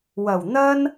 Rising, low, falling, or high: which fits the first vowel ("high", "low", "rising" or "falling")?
low